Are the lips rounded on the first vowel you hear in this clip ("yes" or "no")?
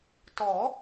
yes